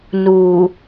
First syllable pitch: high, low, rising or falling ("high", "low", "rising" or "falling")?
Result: low